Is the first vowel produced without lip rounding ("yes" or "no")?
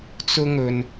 no